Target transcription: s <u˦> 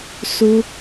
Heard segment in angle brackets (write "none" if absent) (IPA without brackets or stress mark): u˦